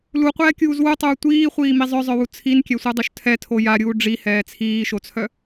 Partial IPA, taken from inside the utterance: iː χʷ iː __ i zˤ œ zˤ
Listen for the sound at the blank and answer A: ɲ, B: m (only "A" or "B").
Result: B